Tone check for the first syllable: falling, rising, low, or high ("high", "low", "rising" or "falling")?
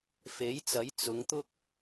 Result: rising